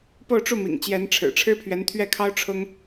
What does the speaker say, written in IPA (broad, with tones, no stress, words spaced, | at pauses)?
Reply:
po˥˧ʊ̯ʈ͡ʂu˥˩mḭ˨˩ŋ t͡ɕjɛ˧˥nʈ͡ʂʰɻ̩˨˩ ʈ͡ʂʰɻ̩˥pʰɥɛ˧˥nt̪ʰɥɛ˥˩kʰɑ˥ʊ̯ ʈ͡ʂʰʊ˥ŋ